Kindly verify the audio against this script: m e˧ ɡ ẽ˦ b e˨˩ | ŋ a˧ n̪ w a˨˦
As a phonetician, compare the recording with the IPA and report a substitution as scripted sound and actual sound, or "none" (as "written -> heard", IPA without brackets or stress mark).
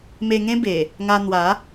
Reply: ɡ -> ŋ